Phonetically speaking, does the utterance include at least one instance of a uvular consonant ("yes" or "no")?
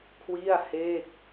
no